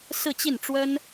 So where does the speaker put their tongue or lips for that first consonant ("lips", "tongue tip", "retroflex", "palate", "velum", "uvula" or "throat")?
tongue tip